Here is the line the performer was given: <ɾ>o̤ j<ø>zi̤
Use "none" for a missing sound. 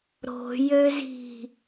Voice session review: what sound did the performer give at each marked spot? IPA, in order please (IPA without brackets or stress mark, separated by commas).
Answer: ɾ, ø